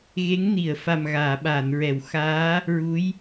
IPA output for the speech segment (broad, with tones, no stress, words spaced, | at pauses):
ɣe˧˥ŋ ni˨˩˨ə̯fa˨˩mɣaː˨˩˨ ɓaː˨˩˨nɹɛ˨˩˨w xaː˧˥ | ɹu˧˥j